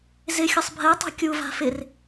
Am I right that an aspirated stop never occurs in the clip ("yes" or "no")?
yes